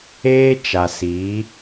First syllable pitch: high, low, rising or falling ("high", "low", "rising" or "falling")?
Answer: high